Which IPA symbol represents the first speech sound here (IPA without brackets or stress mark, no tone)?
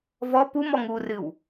v